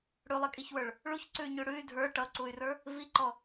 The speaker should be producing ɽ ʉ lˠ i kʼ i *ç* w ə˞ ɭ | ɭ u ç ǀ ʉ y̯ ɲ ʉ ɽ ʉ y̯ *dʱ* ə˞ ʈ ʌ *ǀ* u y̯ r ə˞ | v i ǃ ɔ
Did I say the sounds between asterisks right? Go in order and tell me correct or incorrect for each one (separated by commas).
correct, correct, correct